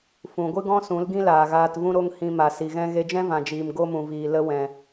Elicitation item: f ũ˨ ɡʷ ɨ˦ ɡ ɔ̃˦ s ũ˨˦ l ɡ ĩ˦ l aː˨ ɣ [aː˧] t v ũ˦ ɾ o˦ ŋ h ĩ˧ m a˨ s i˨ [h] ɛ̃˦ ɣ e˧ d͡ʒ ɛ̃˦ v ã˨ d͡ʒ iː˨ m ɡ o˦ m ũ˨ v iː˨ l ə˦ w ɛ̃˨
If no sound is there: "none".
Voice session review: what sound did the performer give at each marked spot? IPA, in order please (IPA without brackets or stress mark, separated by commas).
aː˧, ɣ